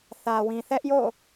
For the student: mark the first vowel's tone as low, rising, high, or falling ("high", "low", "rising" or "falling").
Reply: low